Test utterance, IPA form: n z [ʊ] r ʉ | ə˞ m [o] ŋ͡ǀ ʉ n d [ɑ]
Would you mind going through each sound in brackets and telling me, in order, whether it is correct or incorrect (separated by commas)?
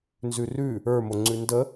incorrect, correct, incorrect